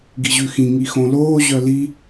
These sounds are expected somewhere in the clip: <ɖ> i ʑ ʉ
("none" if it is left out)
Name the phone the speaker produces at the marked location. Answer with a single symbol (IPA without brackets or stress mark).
ɡ